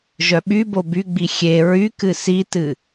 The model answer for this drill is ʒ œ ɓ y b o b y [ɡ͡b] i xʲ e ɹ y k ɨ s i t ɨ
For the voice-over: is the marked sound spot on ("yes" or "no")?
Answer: yes